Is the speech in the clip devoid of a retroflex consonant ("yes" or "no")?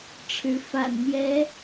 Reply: no